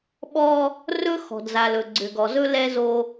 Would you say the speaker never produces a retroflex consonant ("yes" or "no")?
yes